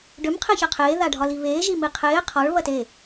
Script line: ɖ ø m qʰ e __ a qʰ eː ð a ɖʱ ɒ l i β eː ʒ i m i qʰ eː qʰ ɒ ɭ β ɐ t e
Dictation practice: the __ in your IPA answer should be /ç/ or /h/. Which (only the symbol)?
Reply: ç